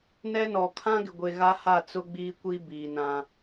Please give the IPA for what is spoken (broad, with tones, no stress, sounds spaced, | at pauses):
n ɛ˦ n ɔ˨ kʰ ã˦ ɡ ɪ˨ ɡʷ e˨ ɣ a˦ h a˦˨ t͡s ʊ˦ ɡ͡b iː˦ kʷ i˦ b iː˨ n ã˦